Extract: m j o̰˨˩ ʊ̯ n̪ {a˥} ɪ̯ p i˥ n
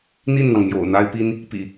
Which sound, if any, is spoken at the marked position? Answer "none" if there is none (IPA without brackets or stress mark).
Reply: a˥